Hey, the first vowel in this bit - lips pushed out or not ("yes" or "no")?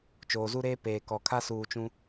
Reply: yes